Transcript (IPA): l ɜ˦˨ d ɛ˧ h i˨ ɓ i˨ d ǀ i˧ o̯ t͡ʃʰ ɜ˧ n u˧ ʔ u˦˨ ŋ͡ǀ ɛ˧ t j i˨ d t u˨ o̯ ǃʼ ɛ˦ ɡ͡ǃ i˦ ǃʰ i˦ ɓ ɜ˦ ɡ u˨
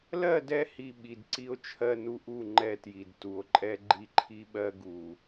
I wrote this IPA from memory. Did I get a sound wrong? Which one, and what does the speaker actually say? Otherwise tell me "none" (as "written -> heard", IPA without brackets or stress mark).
ŋ͡ǀ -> ŋ͡ǃ